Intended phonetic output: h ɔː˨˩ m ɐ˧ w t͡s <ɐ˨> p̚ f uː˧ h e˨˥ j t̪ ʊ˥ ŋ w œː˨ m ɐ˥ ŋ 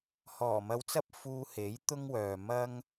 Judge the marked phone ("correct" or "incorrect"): incorrect